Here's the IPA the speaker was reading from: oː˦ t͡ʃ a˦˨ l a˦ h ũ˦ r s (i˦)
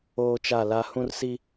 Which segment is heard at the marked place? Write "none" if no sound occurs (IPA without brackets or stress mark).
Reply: i˦